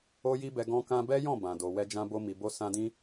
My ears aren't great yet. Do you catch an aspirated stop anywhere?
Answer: no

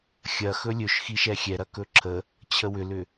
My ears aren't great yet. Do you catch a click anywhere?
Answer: yes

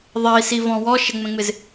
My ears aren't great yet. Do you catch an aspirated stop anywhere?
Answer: no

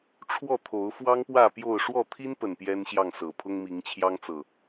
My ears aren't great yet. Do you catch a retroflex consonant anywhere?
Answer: yes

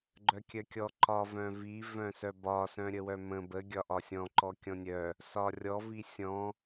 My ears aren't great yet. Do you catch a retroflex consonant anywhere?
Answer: no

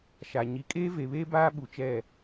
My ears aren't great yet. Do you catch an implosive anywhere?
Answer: yes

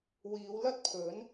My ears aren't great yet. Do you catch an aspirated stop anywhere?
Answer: yes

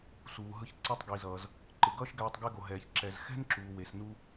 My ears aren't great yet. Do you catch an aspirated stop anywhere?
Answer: no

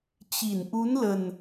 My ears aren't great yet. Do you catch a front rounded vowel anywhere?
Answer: no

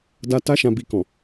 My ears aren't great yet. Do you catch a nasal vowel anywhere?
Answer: yes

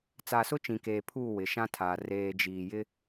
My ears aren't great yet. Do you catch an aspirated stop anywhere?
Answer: yes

